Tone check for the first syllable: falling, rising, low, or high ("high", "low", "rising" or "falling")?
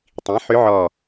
rising